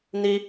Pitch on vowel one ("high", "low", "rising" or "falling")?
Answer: high